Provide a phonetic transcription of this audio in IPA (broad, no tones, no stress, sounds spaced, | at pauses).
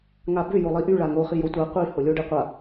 ŋ a b ʏ j o lˠ i ʔ y ɭ a ŋ o χ i j o tʷ a qʷ i h o lʲ o ɖ i qʷ a